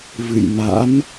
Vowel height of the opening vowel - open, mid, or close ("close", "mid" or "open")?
close